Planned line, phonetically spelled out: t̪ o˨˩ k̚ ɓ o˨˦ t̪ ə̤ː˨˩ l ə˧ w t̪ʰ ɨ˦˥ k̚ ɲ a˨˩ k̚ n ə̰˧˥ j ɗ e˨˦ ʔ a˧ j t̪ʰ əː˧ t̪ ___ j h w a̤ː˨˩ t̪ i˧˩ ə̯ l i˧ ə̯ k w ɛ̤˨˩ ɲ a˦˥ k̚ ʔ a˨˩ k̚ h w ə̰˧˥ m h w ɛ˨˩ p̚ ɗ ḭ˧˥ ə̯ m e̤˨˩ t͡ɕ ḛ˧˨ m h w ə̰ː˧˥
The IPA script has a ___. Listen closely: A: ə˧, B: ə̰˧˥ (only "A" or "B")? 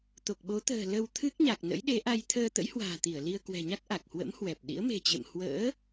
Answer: B